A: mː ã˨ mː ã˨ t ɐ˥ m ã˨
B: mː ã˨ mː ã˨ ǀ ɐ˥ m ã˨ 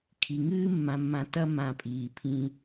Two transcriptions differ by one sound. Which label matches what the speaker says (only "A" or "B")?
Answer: A